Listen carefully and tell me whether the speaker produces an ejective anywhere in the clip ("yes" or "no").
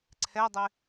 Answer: no